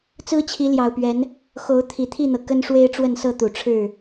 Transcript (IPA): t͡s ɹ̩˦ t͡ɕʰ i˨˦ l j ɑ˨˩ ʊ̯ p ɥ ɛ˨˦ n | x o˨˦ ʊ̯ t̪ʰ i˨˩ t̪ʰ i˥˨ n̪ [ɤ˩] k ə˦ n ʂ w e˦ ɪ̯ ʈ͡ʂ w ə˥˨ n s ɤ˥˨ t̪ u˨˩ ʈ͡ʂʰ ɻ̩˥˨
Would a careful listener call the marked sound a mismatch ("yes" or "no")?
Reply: no